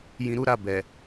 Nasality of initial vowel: nasal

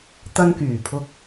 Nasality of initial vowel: oral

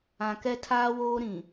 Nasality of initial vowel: nasal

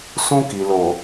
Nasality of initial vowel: nasal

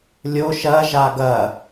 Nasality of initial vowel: oral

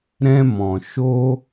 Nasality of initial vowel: nasal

